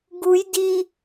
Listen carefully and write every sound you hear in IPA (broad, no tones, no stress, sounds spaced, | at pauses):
ɡ u j d i